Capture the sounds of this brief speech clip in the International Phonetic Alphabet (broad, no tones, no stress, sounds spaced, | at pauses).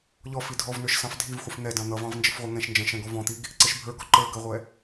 ʎ ɔ f i dʱ ɔ v n ə˞ ʃ s ɑ̃ f dʱ i v χʷ ɪ f n̪ ɛ d ɑ̃ n̪ ʌ v ɑ̃ v n d͡ʒ ə f ʁʷ ʌ ŋ ɛ̃ ʃ n d͡ʒ ɛ̃ ʃ ɛ̃ ɡ ɔ v ɔ̃ t̪ i ɡ | ǀ ɪ ʃ bʱ ə˞ ɡ ɔ ǃ ə˞ ɡ ə ʁʷ ɛ